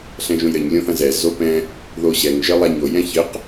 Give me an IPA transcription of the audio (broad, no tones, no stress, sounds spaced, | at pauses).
ɬ ɛ̃ ʒ õ j ɾ ɘ ɲ lʲ õ θ ɐ̃ z ɛ z o p ɛ̃ | ð o ɕ ɛ ŋ ʒ ɘ lˠ a ɲ o j ɛ̃ ç ɘ q